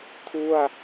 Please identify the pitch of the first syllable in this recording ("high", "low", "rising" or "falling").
falling